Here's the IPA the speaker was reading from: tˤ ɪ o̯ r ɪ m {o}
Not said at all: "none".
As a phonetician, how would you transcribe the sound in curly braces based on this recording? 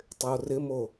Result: o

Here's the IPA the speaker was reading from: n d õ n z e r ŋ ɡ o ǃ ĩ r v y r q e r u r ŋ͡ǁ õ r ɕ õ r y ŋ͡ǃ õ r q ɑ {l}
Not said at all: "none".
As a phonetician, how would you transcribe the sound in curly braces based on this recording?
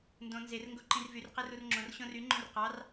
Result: r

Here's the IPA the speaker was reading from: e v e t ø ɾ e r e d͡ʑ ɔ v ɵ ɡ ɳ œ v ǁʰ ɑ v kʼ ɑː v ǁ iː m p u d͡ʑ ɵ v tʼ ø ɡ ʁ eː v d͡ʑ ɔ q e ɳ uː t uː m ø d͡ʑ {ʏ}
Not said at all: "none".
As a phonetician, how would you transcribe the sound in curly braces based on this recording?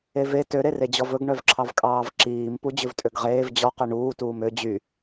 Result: y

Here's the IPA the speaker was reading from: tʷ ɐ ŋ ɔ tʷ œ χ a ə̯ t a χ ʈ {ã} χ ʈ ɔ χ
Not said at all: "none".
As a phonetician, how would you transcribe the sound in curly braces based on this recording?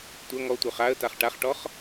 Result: a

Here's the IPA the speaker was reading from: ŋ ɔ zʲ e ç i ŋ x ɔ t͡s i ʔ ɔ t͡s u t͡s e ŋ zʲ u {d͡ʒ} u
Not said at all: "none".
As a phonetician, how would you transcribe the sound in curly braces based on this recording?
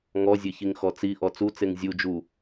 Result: d͡ʒ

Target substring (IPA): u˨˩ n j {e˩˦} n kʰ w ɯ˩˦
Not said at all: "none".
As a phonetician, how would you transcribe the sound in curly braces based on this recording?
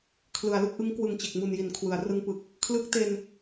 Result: i˩˦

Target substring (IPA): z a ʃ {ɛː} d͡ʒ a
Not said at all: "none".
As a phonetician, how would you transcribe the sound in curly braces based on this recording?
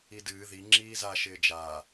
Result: ɪː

